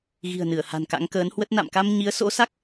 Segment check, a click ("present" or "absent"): absent